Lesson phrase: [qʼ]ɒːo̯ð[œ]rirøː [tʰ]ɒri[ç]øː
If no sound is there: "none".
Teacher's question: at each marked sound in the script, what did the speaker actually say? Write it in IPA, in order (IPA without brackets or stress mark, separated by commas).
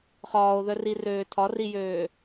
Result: χ, œ, tʰ, j